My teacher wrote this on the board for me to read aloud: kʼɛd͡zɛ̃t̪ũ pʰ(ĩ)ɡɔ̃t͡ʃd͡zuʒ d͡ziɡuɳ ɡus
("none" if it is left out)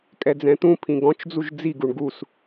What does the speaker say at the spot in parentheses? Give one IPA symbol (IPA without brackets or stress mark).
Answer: ĩ